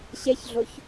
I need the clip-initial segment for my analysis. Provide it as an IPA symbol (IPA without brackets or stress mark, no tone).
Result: ɕ